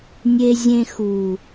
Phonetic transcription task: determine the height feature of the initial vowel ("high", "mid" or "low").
mid